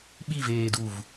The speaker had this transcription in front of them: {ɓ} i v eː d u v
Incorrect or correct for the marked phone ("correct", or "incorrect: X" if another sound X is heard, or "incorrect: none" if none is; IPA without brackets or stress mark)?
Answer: correct